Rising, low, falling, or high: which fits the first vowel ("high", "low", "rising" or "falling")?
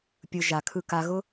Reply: low